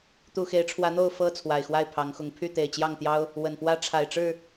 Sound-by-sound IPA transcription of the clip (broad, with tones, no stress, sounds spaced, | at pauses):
t̪ u˨˩ x e˨˦ ɪ̯ ʈ͡ʂʰ w ä˨˦ n̪ o˥˨ ʊ̯ f ɤ˥˨ t͡sʰ w a˨˩ ɪ̯ x w a˥˨ ɪ̯ pʰ ɑ˨˦ ŋ x ʊ˨˦ ŋ pʰ y˥˨ t̪ e˨˩ ɪ̯ t͡ɕ j ɑ˥˨ ŋ t̪ j ɑ˦ ʊ̯ | w ə˨˩ n p w ä˦ ʈ͡ʂʰ a˨˩ ɪ̯ ʈ͡ʂ ɻ̩˥˨